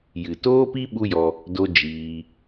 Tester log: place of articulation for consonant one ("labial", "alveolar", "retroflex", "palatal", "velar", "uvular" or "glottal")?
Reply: palatal